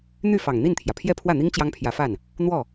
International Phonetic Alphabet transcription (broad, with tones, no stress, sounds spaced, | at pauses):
n̪ y˥˩ f ɑ˨˩ ŋ n̪ i˥˩ n t̪ʰ j ä˩ pʰ j ɛ˥˧ pʰ w ä˥˩ n̪ i˥ ŋ t͡ɕ j ɑ˥ ŋ pʰ j ä˧˥ f a˥˩ n | n̪ w ɔ˥˩